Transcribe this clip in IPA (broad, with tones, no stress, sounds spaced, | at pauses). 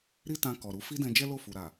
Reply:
ɾ i˦ t ã˧ k ɔ˨ ɾ u˨˦ f i˦ d ɛ̃˧ d͡ʒ ɛ˦ l o˦˨ f u˨ ɾ a˨